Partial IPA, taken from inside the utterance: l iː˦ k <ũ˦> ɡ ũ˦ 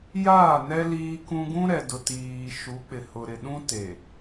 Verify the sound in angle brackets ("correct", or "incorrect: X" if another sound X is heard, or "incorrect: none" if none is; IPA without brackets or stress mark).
correct